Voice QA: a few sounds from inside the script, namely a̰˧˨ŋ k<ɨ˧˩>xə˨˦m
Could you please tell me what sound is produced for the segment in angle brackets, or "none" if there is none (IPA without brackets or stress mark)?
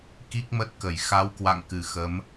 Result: ɨ˧˩